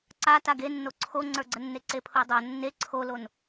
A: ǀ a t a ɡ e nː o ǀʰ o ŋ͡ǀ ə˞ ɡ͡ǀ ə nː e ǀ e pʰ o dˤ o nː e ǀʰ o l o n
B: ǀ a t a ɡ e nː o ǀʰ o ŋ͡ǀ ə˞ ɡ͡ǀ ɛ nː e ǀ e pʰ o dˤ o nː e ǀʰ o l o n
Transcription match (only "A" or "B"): A